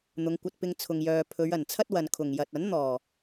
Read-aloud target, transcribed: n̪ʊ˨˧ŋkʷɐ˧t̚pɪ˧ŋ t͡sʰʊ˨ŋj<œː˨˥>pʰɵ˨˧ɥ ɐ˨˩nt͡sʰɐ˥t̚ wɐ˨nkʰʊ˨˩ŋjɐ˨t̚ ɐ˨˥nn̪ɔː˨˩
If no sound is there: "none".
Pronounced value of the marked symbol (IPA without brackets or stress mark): œː˨